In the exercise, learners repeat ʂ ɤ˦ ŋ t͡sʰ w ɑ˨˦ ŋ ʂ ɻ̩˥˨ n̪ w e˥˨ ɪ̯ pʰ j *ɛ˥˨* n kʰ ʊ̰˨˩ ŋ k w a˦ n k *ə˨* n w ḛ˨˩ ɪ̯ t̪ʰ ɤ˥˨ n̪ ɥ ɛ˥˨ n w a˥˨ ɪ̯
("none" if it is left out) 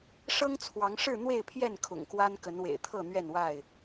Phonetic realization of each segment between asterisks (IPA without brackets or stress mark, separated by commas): ɛ˥˨, ə˨˦